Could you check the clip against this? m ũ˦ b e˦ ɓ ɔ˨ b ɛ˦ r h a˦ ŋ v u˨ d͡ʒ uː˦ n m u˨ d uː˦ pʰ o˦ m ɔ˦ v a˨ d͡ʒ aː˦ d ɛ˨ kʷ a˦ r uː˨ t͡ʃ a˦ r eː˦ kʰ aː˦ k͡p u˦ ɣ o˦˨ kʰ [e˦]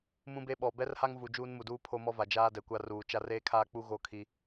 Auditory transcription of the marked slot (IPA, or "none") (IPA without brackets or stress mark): i˦